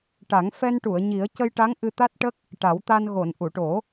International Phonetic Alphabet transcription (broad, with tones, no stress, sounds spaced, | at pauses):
ʈ a˨˩˦ ŋ f ɛ˧ n ʈ u˨˩˨ ə̯ ɲ i˨˩˦ ə̯ c ə˧ j ʈ a˧˥ ŋ ʔ ɨ˧ t̪ a˦˥ t̚ ʈ ə˦˥ k̚ | ʈ a˨˩˦ w t̪ a˧ n ɣ o˨˩˨ n ʔ u˨˩˨ ʈ o˨˩˦